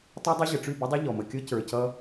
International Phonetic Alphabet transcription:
tˤ ʌ˦ dˤ o˦ ʑ ə˨ ʈ͡ʂ y˦˨ b ɘ˦ dˤ ə˦ ʎ ɔ˨ m ə˨ kʲ ɔ˦ c ə˞˨ c ʌ˦

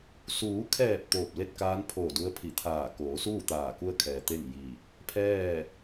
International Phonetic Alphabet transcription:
s uː˩˧ kʰ ɛː˧˩ p̚ t̪ oː˧˩ p̚ l e˥˨ t̚ k aː˧˥ n pʰ oː˧˩ d u˧˥ ə̯ pʰ i˧˩ t̪ʰ aː˧˩ k oː˩˧ s uː˥˨ t̪ aː˧˩ k u˧ ə̯ kʰ ɛː˩ t̪ e˥˨ ŋ j i˧˩ | pʰ ɛː˥˨

